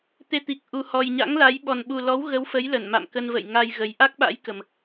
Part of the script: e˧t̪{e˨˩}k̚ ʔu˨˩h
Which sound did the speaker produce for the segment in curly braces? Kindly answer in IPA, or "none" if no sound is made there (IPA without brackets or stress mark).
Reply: i˨˩